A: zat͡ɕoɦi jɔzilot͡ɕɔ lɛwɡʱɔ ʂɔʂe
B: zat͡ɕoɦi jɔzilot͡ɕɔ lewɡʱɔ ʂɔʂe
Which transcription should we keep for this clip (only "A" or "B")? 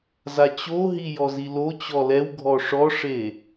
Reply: A